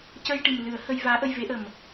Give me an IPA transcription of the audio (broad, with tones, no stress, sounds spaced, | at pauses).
c ə˧ j ʈ i˨˩ m l ɨ˨˩˦ ə̯ h ə˧ j v aː˧˥ ʔ ə˧ j v e˧˥ ʔ ə˨˩ m